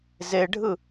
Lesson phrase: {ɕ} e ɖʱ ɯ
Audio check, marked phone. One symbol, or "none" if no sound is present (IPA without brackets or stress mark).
z